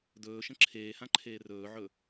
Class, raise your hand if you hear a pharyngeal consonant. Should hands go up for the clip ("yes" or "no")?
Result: yes